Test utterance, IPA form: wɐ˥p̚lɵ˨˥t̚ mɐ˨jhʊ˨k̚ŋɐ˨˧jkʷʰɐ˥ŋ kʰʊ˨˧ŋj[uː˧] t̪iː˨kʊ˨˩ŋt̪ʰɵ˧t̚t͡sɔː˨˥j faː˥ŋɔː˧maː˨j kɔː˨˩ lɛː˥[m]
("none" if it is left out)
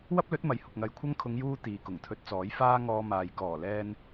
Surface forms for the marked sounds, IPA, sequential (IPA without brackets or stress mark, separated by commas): uː˧, n